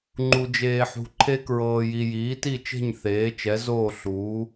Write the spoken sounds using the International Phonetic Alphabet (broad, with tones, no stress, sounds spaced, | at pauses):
ŋ͡ǃ u˨ d͡ʒ eː˨ ħ ṳ˨ ǃʰ e˦ k ɹ ɤː˨ j i˨ j iː˩˥ t i˥˨ t͡ʃ e̤˥˨ ɲ θ eː˩˥ t͡ʃ ɛ˩˥ z oː˥˨ ɬ uː˩˥